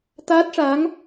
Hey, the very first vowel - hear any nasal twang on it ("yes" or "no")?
no